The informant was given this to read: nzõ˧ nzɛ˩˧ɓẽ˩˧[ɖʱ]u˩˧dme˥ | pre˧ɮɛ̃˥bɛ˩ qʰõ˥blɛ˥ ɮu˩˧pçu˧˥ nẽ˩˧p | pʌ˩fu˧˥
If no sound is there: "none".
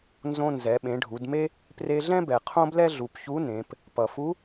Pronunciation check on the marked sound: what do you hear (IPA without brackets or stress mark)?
ɖʱ